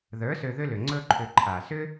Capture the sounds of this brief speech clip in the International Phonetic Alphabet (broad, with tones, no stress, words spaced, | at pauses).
ðə˞˨˦ sø˧ðʏ˦lʏ˨ ŋ͡ǀɵ˧ǃʰʏ˨ ǃʰa˨sʏ˦